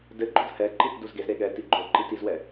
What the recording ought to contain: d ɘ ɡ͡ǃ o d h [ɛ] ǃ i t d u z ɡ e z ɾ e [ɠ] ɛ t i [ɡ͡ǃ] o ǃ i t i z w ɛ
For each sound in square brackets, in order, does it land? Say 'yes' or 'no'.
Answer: yes, yes, yes

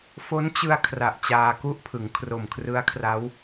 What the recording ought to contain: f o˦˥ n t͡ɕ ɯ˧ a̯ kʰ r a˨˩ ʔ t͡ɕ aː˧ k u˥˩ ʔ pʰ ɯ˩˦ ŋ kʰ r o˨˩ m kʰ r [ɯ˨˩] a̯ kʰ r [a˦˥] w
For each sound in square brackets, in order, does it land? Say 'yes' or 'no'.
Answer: no, yes

